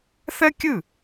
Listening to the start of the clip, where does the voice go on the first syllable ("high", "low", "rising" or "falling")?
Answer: high